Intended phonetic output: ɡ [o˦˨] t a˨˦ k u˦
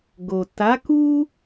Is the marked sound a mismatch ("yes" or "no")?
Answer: yes